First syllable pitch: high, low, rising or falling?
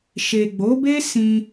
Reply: low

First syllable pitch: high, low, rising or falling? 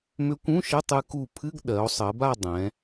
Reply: rising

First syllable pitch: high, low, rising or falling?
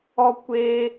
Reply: high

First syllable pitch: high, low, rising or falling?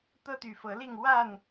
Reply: high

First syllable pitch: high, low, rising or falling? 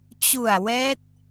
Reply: low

